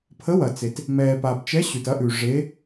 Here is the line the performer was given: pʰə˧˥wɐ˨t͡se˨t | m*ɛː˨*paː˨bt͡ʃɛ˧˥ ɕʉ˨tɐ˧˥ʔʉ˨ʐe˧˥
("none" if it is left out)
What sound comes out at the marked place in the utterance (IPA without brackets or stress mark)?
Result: ɛː˨